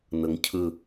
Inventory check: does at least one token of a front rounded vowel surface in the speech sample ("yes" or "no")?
no